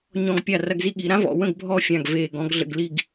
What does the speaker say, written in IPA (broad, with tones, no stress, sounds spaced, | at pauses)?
ɲ ɔ̃˧ ɡ pʲ a˧˩ r ɐ˧ ɡ z i˧ ɠ i˩˧ ɾ ã˥ v ɔ̰˩˧ w ə̃˥˧ ɡ bʱ ɔ˥˧ fʲ ã˧˩ ɡ v eː˧˩ ɡ ɔ̃˥˧ ɡ ɮ ə̰˧ ɡ l i˥˧ ɡ